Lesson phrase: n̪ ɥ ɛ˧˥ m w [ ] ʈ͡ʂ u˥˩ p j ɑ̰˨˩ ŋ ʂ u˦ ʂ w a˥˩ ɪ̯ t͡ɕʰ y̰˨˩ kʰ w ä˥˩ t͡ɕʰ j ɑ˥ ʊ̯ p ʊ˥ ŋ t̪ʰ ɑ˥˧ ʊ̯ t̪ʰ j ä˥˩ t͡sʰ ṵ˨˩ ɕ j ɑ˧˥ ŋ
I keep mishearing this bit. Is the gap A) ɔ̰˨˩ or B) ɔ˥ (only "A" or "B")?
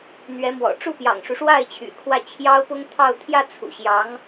A